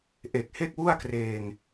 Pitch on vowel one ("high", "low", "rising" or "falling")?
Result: low